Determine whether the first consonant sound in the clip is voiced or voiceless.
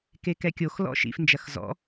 voiceless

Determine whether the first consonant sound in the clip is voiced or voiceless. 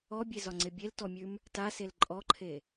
voiced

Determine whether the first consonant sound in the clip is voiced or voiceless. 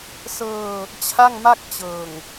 voiceless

